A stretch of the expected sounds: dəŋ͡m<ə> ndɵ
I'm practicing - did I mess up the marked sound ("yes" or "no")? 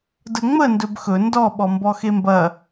no